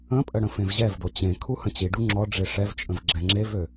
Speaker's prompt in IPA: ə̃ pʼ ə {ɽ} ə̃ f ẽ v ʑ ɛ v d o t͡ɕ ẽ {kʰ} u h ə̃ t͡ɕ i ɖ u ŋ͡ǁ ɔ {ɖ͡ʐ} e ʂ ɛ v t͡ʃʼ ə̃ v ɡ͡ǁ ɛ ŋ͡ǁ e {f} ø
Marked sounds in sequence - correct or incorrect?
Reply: correct, correct, correct, incorrect

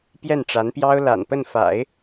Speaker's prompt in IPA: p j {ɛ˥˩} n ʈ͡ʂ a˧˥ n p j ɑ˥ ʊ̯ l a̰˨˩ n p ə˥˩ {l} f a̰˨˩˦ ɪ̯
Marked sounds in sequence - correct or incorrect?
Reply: correct, incorrect

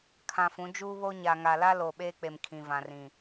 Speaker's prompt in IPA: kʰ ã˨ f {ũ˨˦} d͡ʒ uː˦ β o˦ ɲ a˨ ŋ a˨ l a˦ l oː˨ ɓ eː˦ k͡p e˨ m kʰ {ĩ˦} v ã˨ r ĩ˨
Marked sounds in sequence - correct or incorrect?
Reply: correct, incorrect

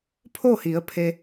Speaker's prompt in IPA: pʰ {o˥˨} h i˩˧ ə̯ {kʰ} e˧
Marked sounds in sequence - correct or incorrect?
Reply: correct, incorrect

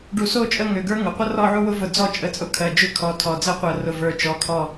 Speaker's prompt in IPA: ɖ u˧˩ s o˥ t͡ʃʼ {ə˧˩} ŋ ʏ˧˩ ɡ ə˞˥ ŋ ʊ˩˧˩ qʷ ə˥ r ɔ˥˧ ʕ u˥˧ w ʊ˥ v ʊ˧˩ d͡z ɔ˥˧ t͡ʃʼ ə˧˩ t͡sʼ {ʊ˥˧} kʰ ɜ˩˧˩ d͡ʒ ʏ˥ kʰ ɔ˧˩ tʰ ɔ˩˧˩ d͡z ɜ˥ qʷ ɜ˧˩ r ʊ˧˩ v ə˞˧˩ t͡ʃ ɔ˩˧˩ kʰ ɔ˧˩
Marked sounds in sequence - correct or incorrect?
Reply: incorrect, correct

